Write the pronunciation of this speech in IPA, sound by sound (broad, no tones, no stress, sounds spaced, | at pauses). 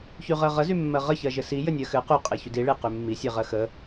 ç y ʁ ɜ ʁ ə z y mː ɜ ʁ ə ç ɜ ʒ ɘ s i j ɘ nʲ ɜ x ɘ q y qʼ e ç y d i ɭ e q y mː i sʲ e ʁ ɜ x ə